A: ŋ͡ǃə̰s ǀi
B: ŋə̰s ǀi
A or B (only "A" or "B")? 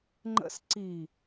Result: A